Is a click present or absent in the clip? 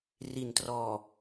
absent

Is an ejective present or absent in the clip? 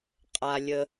present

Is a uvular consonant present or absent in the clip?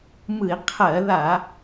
present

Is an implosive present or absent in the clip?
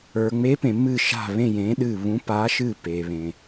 present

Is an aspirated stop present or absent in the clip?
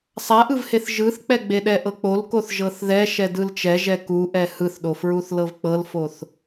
absent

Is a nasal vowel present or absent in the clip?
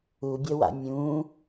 present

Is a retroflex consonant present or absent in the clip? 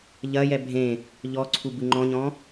absent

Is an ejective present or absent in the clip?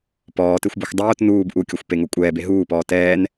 present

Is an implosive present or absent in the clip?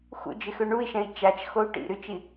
absent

